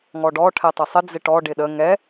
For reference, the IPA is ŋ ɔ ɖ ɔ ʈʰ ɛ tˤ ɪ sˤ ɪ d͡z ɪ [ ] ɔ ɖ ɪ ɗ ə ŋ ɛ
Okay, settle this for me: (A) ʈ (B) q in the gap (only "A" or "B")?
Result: A